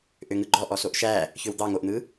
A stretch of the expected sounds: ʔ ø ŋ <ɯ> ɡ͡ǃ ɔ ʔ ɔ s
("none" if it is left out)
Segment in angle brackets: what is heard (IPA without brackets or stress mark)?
ɯ